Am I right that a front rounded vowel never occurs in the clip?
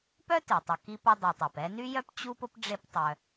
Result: no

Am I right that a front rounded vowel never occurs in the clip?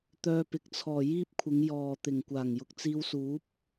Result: no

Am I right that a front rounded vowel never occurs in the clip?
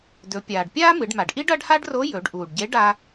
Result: yes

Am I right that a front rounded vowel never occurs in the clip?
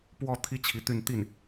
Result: no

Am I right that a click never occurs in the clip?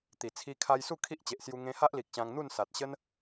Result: yes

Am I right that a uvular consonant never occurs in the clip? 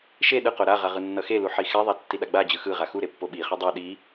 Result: no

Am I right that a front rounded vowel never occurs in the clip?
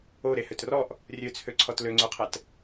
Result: no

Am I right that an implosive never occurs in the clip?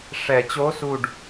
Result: yes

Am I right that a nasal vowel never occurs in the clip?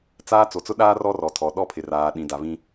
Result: no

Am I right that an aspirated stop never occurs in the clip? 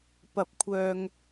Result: no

